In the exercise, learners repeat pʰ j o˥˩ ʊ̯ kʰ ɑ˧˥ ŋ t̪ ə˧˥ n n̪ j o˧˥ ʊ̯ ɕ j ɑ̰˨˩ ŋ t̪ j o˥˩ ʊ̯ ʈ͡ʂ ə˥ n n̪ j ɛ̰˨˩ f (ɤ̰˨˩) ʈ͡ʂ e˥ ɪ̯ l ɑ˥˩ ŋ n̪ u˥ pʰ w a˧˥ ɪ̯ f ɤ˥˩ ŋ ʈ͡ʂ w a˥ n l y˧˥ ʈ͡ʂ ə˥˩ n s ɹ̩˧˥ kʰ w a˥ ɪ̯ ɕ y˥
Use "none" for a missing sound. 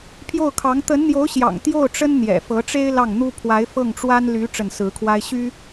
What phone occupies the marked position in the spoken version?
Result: ɤ˧˥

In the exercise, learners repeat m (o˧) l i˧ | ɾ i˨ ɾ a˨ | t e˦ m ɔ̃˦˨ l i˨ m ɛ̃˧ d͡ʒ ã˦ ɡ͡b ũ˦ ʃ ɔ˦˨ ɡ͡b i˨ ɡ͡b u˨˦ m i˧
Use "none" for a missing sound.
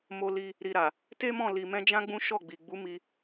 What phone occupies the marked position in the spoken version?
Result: o˧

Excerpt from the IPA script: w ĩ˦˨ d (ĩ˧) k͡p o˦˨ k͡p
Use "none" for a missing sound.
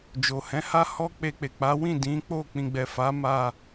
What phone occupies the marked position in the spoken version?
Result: ĩ˨˦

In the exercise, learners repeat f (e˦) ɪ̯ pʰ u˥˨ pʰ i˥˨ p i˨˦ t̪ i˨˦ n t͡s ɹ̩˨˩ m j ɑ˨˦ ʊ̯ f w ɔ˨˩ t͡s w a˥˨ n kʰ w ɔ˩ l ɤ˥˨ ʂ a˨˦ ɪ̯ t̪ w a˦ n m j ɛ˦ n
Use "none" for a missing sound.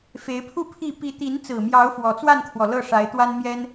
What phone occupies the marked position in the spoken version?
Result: e˨˦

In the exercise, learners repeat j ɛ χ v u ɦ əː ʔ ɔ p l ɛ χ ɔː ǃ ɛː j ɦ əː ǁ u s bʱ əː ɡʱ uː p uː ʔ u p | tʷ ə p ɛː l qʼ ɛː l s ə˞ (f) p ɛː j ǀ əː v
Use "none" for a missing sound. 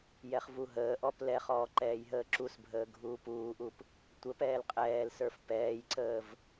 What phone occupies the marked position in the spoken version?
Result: f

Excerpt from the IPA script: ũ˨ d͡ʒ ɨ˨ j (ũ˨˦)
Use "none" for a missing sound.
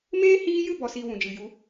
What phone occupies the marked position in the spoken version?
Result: u˨˦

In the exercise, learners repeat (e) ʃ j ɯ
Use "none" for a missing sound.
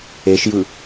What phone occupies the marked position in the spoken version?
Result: e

